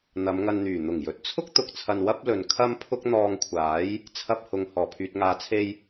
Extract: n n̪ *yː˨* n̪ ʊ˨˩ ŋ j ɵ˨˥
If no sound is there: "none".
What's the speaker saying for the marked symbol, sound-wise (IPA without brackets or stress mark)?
yː˨˩